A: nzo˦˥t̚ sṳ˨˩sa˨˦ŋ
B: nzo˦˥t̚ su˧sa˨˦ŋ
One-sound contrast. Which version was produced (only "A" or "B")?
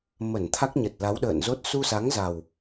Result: B